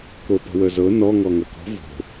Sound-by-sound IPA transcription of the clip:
k o p ə̤ w ə z ɤ n ɔ ŋ ɔ ŋ ɐ k ɔ̤ v o̤

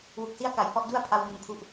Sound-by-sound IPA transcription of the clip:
w u˨˩ k̚ s i˥˩ a̯ k a˨˩ j h ɔ˥˩ ʔ d u˥˩ a̯ pʰ a˧ w m u˨˩ n kʰ u˥˩ ʔ

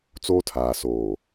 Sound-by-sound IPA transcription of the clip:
t͡s oː˦ tʰ aː˨ s oː˨

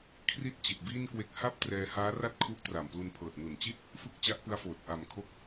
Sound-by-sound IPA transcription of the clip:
kʰ r i˦˥ t̚ t͡ɕ i˨˩ t̚ b iː˥˩ n k w e˦˥ k̚ h a˥˩ p̚ t r ɛː˧ h aː˦˥ r a˥˩ t̚ kʰ u˦˥ ʔ t r a˨˩ m p l u˧ n pʰ ɤː˨˩ t̚ n u˨˩ n t͡ɕ i˥˩ t̚ | f ɯ˥˩ k̚ t͡ɕ a˦˥ ʔ p ɯ˦˥ a̯ f oː˨˩ t̚ ʔ a˨˩ m kʰ o˦˥ k̚

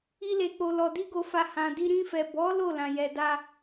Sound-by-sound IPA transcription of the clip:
i˦ l e˧ k͡p o˧ l ɔ˧ d i˦ ɡ o˧ f a˧ h ã˨ d i˧ ɾ ĩ˧ f ɛ˨ b ɔ˨˦ l o˦˨ l ã˨ j ɛ˨ d a˧

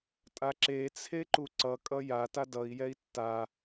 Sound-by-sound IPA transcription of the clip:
tʼ a ǁ e t͡sʰ e ǃ u ǀ ʌ kʼ ʌ j a t a d ʌ i̯ j ɛ i̯ tː a

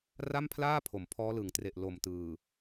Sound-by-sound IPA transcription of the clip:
r a˥˩ m pʰ l aː˥˩ pʰ o˩˦ m pʰ ɔː˦˥ l ɯ˨˩ ŋ t r e˨˩ ʔ l o˨˩ m t ɯː˨˩

